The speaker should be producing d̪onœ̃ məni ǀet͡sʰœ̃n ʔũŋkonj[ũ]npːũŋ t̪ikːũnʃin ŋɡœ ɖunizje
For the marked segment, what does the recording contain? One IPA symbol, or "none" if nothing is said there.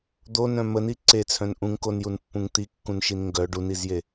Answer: u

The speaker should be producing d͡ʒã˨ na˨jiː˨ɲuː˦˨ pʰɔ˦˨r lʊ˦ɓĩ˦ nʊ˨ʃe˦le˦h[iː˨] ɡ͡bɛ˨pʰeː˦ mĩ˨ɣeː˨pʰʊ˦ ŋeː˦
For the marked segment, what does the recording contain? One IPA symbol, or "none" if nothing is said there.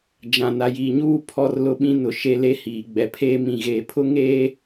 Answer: iː˨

